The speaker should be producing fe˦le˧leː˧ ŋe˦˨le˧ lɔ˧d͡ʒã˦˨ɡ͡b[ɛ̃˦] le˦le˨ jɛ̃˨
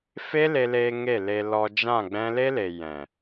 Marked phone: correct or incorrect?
correct